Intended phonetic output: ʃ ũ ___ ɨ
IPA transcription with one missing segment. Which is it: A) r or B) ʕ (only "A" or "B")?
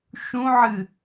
B